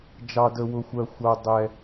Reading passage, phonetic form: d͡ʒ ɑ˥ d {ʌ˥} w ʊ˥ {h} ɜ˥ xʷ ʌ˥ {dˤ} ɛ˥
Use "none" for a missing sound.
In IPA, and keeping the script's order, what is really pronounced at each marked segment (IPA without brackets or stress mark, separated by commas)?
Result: ə˥, xʷ, dˤ